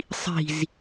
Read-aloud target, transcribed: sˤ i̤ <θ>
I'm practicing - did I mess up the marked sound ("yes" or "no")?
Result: yes